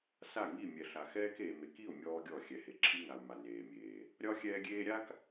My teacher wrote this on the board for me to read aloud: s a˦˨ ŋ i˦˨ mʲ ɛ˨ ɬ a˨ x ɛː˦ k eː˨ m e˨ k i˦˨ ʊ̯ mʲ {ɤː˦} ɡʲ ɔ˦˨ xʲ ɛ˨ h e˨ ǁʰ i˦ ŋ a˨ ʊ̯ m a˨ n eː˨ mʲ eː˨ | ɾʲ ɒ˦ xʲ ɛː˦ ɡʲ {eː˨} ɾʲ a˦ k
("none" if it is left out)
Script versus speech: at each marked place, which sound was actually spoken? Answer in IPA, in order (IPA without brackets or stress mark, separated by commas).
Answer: ɔː˦, eː˦